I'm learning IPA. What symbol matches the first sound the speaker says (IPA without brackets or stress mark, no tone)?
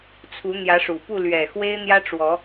t͡sʰ